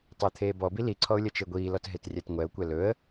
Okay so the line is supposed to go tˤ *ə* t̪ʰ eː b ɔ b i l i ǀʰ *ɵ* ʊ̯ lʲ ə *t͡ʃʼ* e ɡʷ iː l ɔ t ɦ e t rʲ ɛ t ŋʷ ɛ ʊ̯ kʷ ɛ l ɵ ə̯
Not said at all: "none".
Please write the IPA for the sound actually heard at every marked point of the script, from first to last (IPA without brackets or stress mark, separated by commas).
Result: əː, ɔ, t͡ʃ